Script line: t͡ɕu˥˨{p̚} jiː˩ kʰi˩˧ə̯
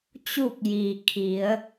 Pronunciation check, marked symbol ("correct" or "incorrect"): incorrect